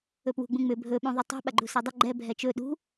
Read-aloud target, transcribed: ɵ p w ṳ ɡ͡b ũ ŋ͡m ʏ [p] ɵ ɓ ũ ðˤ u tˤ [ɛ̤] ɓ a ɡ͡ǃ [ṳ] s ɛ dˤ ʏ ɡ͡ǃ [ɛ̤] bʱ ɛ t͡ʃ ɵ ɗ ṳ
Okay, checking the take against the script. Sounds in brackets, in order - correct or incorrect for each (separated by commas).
incorrect, correct, correct, incorrect